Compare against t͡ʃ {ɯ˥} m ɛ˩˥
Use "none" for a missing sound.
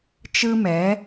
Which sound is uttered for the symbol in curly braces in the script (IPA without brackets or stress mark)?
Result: ɯ˥